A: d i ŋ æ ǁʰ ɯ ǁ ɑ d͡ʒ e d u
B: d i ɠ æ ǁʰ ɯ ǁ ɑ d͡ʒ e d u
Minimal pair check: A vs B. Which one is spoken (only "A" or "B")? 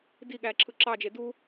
B